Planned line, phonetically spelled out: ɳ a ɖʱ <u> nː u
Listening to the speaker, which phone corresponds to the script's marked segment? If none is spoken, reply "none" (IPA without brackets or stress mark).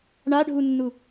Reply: u